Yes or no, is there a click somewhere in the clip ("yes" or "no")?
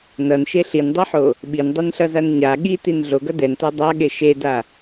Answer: no